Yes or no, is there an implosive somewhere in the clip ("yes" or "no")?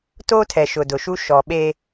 yes